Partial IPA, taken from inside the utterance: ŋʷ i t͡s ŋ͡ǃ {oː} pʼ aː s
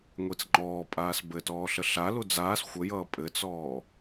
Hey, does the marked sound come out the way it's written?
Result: no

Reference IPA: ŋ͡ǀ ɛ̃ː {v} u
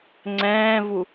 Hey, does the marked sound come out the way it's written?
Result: yes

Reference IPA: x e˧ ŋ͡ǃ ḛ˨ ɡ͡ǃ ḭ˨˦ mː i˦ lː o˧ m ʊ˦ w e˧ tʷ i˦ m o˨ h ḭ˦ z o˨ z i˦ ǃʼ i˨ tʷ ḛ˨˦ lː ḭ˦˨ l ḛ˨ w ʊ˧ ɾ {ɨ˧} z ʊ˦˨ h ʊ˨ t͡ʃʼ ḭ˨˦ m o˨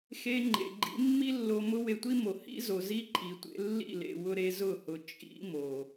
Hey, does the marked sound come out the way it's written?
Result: no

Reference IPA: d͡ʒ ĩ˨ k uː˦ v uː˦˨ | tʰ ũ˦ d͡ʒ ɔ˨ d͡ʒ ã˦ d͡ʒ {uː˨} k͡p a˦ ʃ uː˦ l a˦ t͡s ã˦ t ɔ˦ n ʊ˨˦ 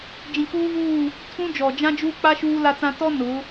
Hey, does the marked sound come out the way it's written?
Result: no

